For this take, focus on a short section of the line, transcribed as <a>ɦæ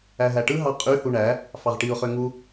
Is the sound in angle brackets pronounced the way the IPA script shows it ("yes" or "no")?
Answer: no